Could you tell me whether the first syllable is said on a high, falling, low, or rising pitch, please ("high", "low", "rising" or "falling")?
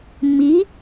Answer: rising